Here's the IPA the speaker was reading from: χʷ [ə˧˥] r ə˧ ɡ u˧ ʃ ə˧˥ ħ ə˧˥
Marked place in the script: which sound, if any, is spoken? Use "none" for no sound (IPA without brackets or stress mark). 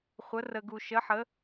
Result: ə˧˥